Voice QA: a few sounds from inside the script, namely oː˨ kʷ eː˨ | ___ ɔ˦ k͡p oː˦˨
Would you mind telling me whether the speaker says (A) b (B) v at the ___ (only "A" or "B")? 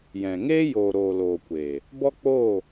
A